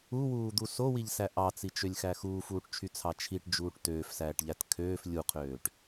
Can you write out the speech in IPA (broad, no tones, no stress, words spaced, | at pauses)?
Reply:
uwuːd̪u sowiʎsæ ʔɑt͡sit͡ʃølʲxæ xuːfuːʈt͡ʃʰyt͡sʰɑ t͡ʃʰiʈd͡ʒuːʈ tøːfsæːʈʎæt kʰøːf lʲuqʰøːʈ